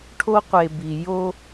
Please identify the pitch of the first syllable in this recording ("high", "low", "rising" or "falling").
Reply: high